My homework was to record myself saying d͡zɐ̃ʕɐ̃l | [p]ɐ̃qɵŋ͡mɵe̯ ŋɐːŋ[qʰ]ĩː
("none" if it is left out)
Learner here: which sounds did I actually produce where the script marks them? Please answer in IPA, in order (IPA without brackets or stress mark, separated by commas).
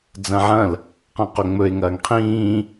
q, qʰ